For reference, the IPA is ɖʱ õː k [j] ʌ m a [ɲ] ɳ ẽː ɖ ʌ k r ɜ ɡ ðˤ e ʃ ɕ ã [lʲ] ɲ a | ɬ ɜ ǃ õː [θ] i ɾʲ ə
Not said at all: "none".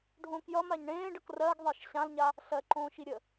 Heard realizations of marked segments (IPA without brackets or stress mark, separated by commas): j, ɲ, l, ʃ